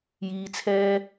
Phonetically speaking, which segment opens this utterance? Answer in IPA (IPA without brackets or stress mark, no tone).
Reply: j